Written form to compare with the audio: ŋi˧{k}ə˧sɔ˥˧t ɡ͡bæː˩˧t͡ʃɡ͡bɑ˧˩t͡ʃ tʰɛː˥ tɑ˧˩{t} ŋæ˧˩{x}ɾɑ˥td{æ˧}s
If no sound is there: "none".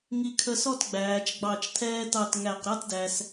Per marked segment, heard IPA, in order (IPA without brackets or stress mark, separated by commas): kʰ, t, q, æ˧